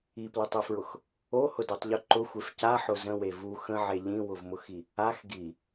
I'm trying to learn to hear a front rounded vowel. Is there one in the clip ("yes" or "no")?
no